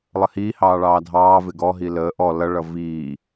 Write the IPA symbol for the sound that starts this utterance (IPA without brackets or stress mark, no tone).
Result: lˠ